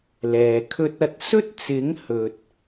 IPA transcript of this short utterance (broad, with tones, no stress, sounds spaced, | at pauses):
l ɛː˨ kʰ ɵ˥ t̚ ɐ˥ t̚ s ɵ˥ t̚ t͡s ɪ˨˥ ŋ h ɵ˨ t̚